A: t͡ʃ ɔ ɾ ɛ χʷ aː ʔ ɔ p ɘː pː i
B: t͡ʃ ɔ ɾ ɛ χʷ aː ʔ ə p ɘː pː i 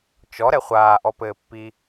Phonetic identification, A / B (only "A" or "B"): A